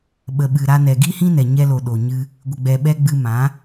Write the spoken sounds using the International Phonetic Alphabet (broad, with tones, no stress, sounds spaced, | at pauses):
ɓ ə˨ ɓ ɨ˨ ɾ a˧ n ɛ˨ ɡ i˦ h ĩ˦ n ɛ˨ ɲ ɛ˧ l o˨ ɗ o˨ ɲ ɨ˧ | ɡʷ ə˨ ɡ͡b ɛ˨ ɓ ɛ˧ ɡ͡b ɨ˧ m ã˨˦